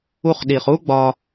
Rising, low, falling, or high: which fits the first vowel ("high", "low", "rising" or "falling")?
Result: high